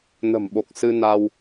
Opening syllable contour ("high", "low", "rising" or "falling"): low